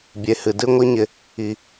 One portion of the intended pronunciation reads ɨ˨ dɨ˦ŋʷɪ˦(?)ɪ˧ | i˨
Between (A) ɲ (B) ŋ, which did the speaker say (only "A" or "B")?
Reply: A